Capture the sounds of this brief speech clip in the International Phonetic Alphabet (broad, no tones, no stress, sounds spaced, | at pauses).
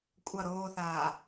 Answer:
kʷʼ ʌ ɾ oː θ aː